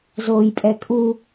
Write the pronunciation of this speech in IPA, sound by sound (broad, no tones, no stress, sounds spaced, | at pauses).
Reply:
z oː j pʼ ɛ kʼ u